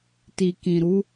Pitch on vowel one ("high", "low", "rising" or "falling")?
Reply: low